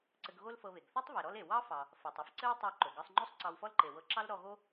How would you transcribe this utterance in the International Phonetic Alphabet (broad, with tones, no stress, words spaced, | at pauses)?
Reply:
ǀɘ˧ɡɣo˥lfɤ˧βe˩ɡ θɑ˥tˤ βe˩ɾɔ˥l e˩ wɑ˥fɑ˩ | fo˩tˤɘ˥f ǀɘ˥wtˤo˧ ǃo˩ɡɤ˧sˤŋ͡ǃo˥sˤ ǀɑ˧wfɔ˥lǃe˩wɤ˧ ǁɑ˥l ɾɔ˧ɣo˥